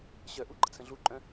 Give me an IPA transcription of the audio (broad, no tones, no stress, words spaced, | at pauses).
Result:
ɕœʔu ɡ͡ǃət͡sʰə̃ɮuǃʼœ̃